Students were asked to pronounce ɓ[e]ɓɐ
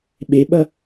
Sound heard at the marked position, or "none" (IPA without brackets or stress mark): e